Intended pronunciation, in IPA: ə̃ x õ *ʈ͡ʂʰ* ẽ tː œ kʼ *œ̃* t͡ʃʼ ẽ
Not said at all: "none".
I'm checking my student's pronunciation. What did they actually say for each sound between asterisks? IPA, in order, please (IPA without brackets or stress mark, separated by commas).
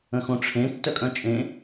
ʈ͡ʂʰ, œ̃